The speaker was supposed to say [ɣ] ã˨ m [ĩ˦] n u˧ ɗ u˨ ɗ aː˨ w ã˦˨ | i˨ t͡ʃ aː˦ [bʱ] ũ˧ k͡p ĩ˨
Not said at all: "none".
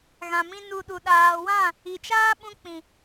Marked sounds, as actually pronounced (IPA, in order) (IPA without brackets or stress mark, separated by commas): ɣ, ĩ˦, ɓ